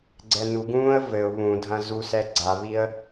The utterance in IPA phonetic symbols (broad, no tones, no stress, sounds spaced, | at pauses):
ɡ͡ǀ ɛ n u ɡ ũː ə̯ v ɘ ʊ̯ β ũ dʱ ɐ̃ z u s ɛ ɡ͡ǀ a β i ə̯